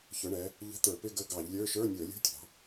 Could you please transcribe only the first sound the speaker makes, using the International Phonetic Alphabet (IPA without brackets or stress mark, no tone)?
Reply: ç